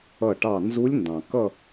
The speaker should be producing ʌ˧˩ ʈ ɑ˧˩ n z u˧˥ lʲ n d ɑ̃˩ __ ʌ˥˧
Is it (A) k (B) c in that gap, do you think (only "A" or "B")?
A